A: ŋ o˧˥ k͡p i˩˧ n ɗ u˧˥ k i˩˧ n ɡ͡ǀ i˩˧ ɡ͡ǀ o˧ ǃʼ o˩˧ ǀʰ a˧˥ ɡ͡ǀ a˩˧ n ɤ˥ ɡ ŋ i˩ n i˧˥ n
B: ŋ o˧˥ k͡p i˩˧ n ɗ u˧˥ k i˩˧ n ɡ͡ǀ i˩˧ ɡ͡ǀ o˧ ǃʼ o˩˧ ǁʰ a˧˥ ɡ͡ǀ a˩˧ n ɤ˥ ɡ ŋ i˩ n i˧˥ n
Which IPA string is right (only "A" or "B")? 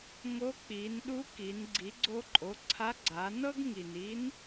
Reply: A